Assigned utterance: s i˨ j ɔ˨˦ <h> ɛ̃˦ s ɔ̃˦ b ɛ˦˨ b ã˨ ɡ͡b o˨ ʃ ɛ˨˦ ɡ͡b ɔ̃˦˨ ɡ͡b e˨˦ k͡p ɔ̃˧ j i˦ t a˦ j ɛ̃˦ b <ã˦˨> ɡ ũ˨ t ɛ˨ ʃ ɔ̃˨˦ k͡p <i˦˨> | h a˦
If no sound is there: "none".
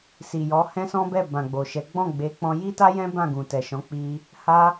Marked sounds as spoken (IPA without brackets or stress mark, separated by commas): h, ã˦˨, i˧